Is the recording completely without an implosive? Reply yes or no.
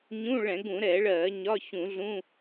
yes